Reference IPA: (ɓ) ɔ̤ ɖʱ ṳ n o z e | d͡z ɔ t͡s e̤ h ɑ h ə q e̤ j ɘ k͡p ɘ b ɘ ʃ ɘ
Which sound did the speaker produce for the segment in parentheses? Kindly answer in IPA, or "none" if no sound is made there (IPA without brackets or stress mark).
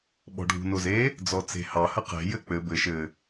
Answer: ɓ